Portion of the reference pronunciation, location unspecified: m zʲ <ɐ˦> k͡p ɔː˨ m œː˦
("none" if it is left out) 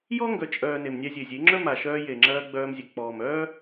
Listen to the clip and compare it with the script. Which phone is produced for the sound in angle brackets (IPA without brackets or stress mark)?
ɐ˨